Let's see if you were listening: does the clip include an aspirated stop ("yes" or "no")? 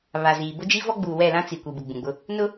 no